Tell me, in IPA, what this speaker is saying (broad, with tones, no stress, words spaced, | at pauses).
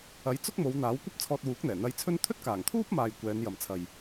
ɐ˨˥j t͡sʊ˥k̚mo˨˧wn̪aː˨˥w kʷɐ˥p̚t͡sʰɔː˧t̚wuː˨˥k̚n̪ɛː˨˩ n̪ɐ˧jt͡sʰɵ˥n t̪ʰɵ˥t̚kaː˨˩ŋt̪ʰuː˥p̚maː˨j kʷɛː˨˧njɐ˨mt͡sʰɐ˨j